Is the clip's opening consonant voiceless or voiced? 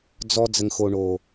voiced